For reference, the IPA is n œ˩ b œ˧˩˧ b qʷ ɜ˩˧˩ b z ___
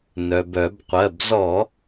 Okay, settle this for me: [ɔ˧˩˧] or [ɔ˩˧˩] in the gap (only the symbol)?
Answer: ɔ˧˩˧